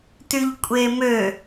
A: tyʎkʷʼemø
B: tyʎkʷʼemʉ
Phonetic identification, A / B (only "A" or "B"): A